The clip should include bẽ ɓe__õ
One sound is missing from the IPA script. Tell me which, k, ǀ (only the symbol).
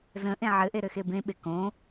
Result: k